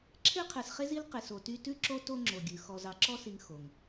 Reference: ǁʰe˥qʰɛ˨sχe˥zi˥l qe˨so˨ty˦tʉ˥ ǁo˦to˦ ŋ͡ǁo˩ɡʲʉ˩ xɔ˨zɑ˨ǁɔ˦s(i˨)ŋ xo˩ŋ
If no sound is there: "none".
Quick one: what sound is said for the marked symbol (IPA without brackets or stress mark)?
i˨